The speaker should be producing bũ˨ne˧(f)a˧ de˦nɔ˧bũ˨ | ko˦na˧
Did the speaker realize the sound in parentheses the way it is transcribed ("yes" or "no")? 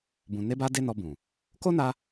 no